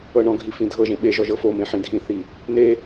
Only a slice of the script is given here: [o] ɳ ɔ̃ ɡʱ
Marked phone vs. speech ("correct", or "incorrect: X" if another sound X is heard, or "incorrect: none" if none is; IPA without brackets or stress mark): incorrect: ɤ